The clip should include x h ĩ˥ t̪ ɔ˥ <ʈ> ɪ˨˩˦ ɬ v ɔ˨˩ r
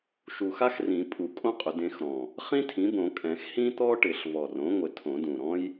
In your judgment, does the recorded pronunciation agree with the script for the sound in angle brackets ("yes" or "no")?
yes